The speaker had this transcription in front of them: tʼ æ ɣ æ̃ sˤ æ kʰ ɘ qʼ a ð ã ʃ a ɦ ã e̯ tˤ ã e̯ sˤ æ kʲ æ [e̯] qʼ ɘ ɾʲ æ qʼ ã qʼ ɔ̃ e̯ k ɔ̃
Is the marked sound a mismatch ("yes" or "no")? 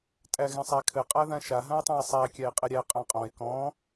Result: no